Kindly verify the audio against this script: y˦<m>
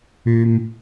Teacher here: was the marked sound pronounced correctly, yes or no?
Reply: yes